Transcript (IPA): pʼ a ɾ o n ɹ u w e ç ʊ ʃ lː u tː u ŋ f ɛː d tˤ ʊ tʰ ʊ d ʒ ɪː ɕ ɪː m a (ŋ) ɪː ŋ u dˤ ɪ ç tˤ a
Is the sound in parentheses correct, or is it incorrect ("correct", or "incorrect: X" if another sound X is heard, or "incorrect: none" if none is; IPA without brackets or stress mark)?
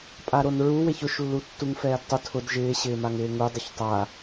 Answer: correct